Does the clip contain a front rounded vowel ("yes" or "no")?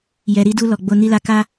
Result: no